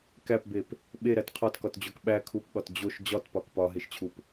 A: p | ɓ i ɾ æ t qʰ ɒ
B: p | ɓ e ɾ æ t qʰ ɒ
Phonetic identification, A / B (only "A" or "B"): B